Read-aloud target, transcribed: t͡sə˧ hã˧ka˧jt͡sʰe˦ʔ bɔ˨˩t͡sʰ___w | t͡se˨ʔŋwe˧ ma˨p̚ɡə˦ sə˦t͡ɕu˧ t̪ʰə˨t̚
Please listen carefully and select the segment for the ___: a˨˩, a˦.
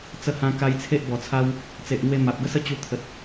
a˦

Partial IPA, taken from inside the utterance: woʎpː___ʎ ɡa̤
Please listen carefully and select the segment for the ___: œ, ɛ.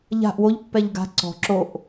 ɛ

